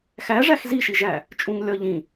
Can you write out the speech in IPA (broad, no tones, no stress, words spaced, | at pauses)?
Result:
xæ ʐæxziʃiʒæ | t͡ʃʼũŋlʲɒ ʎĩ